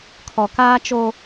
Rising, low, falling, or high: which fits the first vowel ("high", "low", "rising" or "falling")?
low